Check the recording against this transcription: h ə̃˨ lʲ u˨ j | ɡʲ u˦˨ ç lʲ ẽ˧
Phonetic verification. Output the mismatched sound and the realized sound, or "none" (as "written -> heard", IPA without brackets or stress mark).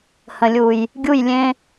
ç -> j